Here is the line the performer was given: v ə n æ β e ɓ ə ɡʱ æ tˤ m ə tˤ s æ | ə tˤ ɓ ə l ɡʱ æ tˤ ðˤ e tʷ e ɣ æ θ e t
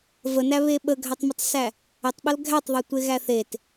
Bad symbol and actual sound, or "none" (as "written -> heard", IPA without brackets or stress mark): none